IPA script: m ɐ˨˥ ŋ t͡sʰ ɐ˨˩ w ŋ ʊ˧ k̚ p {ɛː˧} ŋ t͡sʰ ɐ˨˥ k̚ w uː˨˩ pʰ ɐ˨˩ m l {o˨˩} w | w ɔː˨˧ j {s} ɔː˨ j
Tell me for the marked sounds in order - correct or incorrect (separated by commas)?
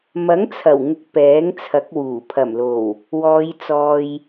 incorrect, correct, incorrect